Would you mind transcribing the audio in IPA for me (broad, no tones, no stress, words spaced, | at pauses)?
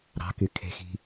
ɾɑ̤ky kʰe̤xi̤